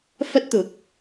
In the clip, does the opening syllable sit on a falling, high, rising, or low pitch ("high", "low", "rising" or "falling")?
high